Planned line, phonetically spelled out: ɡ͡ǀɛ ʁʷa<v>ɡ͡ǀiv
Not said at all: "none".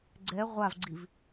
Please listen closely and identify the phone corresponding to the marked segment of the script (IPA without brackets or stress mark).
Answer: v